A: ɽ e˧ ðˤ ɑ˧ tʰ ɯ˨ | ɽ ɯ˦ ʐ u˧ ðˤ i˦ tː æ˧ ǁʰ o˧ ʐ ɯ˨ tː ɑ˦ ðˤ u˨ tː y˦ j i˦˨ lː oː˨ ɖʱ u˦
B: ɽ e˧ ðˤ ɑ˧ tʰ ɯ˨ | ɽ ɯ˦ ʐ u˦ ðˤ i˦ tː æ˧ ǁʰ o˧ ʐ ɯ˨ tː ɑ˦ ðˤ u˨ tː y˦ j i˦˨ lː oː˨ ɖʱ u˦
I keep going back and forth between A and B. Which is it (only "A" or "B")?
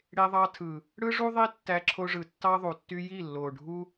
B